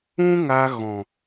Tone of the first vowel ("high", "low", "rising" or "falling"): high